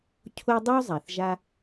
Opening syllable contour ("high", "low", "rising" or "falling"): high